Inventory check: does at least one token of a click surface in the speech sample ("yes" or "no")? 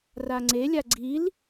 yes